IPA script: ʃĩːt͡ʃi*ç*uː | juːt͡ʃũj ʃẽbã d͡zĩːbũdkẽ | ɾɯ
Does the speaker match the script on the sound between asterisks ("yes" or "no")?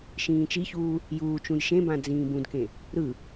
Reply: yes